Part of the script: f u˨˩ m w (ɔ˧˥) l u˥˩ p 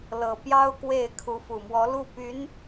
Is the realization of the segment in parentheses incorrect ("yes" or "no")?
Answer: no